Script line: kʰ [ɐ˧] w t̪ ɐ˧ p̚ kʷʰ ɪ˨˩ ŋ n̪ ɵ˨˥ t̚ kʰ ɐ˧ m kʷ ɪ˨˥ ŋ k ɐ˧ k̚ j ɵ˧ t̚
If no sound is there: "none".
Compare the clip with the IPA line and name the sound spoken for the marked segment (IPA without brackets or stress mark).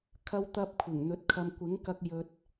ɐ˧